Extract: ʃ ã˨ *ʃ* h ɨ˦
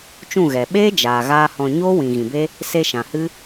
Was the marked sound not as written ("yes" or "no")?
yes